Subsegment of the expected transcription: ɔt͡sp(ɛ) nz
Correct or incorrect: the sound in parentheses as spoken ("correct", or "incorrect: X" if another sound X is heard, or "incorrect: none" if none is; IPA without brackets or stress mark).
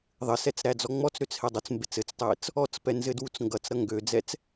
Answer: correct